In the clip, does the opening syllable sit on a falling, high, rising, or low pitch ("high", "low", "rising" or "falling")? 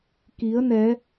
rising